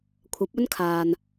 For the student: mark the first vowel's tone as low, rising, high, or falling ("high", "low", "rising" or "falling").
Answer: rising